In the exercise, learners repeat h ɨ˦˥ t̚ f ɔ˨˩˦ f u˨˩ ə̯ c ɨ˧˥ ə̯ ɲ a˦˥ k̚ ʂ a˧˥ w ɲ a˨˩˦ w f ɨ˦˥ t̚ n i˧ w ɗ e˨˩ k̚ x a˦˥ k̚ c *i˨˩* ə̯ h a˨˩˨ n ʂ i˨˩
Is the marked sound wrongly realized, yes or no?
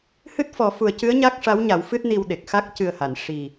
yes